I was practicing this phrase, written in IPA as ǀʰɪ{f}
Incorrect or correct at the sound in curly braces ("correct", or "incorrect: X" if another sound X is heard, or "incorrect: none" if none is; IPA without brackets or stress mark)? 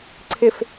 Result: correct